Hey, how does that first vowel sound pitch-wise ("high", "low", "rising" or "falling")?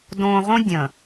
low